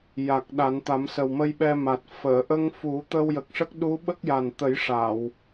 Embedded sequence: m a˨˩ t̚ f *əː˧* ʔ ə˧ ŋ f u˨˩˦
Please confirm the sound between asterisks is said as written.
no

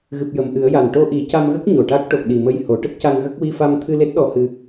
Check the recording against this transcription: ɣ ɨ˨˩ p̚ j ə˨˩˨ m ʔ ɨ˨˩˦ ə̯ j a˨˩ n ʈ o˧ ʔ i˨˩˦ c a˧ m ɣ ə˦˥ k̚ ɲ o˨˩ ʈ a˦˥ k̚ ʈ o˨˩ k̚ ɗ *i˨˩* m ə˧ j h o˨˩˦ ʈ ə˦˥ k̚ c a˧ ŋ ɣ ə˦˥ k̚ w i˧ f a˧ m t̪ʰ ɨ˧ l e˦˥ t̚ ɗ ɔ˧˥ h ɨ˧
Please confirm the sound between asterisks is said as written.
yes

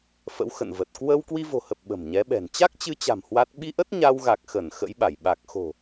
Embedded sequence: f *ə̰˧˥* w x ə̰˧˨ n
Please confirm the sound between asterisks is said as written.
yes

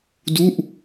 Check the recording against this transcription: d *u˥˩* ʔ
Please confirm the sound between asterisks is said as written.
yes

